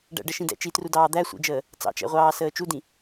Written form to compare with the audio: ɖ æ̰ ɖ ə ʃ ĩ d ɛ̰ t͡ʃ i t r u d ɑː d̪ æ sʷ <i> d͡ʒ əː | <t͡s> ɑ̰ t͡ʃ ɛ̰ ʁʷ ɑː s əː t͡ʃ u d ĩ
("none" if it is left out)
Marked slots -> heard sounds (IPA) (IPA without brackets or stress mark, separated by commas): ḭ, t͡s